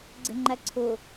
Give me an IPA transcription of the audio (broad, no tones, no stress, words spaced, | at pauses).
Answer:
ɡ͡ǀe̤ŋ͡ǃæǀʰʊ